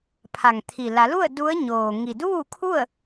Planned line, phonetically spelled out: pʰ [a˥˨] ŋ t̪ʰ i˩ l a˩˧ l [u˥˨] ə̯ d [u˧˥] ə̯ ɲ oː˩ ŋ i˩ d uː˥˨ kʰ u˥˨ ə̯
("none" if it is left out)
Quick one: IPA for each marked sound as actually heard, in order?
a˩, u˥˨, u˧˥

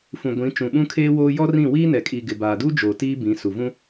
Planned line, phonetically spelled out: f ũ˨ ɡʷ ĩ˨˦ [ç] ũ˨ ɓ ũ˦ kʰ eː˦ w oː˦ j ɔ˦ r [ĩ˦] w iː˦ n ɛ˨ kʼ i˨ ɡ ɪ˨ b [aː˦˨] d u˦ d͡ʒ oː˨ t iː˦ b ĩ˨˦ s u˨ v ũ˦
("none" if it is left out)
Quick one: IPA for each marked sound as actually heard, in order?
t͡ʃ, ĩ˦˨, aː˨

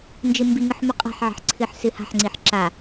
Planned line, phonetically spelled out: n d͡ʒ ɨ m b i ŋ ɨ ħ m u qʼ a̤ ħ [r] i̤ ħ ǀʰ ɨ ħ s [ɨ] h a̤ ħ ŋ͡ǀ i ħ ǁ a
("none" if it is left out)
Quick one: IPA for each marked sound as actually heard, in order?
ʕ, ɨ

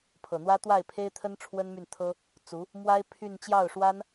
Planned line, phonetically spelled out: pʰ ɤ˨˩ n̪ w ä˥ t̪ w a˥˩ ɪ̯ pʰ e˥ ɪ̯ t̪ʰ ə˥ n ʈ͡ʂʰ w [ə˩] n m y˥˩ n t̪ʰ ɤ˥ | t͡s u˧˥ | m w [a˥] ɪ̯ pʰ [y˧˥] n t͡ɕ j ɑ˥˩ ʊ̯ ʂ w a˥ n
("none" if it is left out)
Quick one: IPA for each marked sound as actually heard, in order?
ə˥, a˥, y˥˧

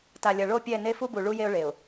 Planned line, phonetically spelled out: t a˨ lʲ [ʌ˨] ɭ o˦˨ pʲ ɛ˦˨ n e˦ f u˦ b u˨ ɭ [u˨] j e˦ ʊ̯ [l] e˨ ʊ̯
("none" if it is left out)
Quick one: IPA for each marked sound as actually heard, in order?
ʌ˨, u˦, ɭ

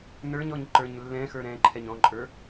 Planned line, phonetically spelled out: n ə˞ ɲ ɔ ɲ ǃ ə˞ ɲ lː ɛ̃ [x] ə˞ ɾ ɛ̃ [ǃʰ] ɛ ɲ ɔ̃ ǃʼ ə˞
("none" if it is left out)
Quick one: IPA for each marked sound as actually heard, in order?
x, ǃʰ

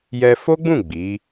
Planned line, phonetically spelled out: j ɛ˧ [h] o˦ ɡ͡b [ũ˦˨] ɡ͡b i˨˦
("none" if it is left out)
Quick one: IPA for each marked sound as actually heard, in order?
f, ũ˦˨

